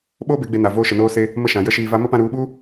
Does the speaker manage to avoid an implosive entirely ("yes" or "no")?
no